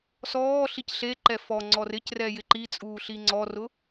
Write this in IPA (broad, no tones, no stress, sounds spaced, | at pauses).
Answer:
s ɔː ɬ i c ɬ e ǃ ɛ f ɔ ŋ͡ǀ ɔ r ɪ c r ɛ j ɪ ǃ i t͡sʼ uː ɬ i ŋ͡ǀ ɔ r ʊ